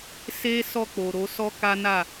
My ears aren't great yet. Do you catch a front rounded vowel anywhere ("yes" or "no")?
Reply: no